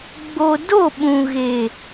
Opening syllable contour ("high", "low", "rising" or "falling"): low